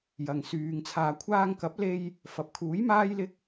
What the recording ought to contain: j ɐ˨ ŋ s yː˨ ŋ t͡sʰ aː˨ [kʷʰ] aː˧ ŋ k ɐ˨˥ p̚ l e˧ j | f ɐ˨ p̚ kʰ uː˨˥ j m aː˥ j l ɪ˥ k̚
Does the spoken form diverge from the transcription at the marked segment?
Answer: no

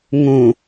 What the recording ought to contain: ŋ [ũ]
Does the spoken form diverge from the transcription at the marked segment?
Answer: no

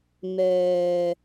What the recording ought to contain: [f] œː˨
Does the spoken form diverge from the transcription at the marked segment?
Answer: yes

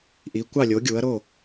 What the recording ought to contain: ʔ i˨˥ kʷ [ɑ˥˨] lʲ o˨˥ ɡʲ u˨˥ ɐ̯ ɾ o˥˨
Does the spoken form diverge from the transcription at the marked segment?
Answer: no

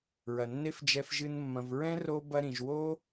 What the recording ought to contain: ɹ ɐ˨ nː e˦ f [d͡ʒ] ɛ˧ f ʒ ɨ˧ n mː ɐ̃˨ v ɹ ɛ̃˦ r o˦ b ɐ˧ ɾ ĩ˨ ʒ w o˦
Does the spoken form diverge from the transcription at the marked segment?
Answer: no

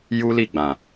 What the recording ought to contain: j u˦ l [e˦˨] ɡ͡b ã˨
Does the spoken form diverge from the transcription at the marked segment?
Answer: yes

